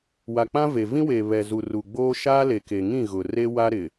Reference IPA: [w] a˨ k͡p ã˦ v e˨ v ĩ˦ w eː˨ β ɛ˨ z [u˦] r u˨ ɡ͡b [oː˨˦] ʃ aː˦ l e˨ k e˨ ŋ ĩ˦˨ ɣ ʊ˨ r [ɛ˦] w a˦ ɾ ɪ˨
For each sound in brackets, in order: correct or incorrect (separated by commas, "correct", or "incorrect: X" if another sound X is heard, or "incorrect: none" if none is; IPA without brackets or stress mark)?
correct, incorrect: u˨, incorrect: oː˦, incorrect: e˦